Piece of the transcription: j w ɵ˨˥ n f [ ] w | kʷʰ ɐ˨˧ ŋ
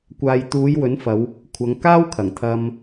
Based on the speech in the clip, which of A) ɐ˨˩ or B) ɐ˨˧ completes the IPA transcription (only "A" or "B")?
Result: B